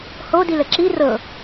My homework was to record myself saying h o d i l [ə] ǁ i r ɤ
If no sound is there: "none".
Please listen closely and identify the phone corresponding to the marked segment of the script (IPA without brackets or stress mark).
ə